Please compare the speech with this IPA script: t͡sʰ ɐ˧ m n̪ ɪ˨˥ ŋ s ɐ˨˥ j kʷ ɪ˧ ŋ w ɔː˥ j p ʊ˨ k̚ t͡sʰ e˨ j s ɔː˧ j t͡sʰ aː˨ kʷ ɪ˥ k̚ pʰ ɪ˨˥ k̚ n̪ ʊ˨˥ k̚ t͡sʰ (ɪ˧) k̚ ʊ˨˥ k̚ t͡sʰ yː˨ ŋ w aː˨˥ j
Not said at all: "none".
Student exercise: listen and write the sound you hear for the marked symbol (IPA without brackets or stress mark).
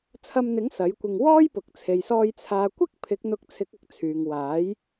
ɪ˨˥